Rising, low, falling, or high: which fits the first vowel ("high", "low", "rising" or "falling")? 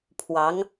rising